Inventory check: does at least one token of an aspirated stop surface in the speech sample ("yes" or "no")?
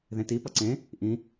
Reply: no